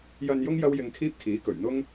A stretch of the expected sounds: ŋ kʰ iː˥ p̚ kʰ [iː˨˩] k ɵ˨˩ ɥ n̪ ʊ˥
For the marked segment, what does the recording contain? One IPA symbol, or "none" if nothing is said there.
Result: iː˨˥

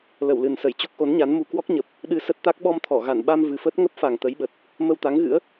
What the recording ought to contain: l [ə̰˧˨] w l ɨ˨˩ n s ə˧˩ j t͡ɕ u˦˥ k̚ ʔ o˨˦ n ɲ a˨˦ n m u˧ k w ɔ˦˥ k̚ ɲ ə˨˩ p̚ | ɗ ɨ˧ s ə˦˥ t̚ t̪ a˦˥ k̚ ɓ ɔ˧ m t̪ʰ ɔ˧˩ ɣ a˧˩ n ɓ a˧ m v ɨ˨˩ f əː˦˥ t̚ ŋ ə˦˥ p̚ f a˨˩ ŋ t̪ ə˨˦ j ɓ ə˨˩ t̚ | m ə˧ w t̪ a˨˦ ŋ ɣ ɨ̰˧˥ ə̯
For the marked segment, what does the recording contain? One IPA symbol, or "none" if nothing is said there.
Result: ə˧˩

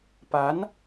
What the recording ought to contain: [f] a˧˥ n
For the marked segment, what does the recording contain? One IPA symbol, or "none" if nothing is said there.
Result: p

